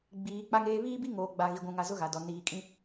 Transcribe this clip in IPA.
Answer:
ɡ͡b iː˨˦ k͡p a˦ ŋ eː˦ β iː˦ b i˦ ŋ oː˨ ɡ͡b a˨ ɣ i˨ ɡʷ ũ˨ ŋ a˨ z ʊ˦ ɣ a˨ d ɔ˨ n iː˨ kʼ ĩ˦

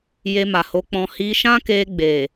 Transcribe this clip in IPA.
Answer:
j e˧ m a˨ h o˨˦ k͡p ɔ̃˧ h i˧ ʃ ã˦ k e˧ ɡ͡b e˨

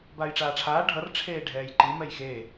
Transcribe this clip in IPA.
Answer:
b aː j ʈ͡ʂ aː ʈ͡ʂʰ aː ɖʱ ʌ r ʈ͡ʂʰ eː ɖʱ ɛː j ǃ i m ɛ j x eː

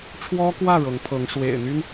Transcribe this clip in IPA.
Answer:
ʈ͡ʂʰ w ɔ˥ k w ä˥˩ ɻ ɤ˧˥ ŋ pʰ ɤ˧˥ ŋ ʂ w ḛ˨˩ ɪ̯ n̪ y˥ n

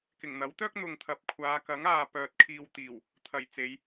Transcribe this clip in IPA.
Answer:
k ɪ˨˩ ŋ n̪ ɐ˨˥ w t̪ œː˥ k̚ n̪ ʊ˨ ŋ t̪ʰ ɐ˨ p̚ kʷʰ aː˨˧ k ɐ˨˥ ŋ aː˨ p œː˨ t̚ kʰ iː˨ w t̪ iː˨˩ w | t̪ʰ ɐ˨˩ j t͡s e˨˧ j

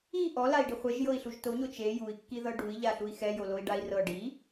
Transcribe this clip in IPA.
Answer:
i ʔ ɔ l a i̯ ɖ i χʷ e ʒ j ɤ i̯ ɬ u ʒ t o ɲ o t͡ʃ e j u i̯ kː i ð ɤ ɖ u i̯ ʎ a ɬ u i̯ x ɛ j o l o i̯ ɖ a i̯ r ɤ ɖ i

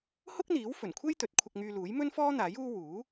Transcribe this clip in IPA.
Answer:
h ʊ˥ k̚ n̪ iː˨˥ w f ɵ˨˩ n kʷʰ e˥ j t̪ ɵ˨˥ t̚ kʷʰ ɐ˧ k̚ ŋ yː˧ l uː˨˥ j m ɵ˥ n f ɔː˥ n̪ aː˨˥ j uː˥ w uː˨˥

